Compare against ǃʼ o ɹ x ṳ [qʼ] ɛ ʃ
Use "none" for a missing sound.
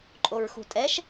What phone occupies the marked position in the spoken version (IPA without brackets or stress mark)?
tʼ